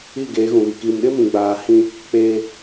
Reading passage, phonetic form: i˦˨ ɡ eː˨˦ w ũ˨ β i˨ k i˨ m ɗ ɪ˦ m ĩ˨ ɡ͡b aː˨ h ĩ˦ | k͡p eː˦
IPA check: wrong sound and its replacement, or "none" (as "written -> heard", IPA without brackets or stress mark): w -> ɣ